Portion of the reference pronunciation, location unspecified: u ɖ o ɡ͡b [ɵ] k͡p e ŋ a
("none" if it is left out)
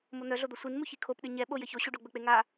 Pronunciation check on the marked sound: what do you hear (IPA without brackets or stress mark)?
ɵ